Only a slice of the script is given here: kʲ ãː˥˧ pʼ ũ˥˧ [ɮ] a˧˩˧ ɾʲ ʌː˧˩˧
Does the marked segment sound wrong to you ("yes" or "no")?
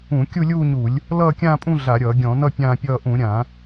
no